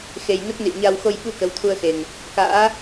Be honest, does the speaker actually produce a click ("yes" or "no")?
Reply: no